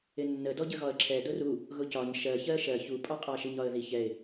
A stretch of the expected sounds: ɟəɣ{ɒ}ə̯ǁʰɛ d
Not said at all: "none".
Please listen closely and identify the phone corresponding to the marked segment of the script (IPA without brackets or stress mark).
ɒ